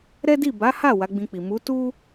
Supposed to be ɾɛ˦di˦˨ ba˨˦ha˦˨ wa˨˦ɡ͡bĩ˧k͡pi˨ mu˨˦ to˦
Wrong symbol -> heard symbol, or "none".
o˦ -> u˦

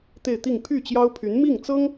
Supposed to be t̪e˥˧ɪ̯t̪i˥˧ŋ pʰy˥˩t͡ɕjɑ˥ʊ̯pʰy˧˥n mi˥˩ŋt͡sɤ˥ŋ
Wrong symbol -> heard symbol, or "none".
none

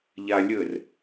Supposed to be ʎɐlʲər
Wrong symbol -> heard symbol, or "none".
ɐ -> a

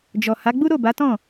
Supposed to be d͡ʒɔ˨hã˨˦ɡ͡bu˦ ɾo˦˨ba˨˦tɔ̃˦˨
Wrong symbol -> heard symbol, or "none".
ã˨˦ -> a˨˦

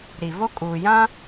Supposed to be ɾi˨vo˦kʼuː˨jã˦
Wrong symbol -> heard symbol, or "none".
none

